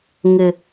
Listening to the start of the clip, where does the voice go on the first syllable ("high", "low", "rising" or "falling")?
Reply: high